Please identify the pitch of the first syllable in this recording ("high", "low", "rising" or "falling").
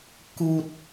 low